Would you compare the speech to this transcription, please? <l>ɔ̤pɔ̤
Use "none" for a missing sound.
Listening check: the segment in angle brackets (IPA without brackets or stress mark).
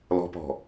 l